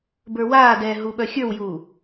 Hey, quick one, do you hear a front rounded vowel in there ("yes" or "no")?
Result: yes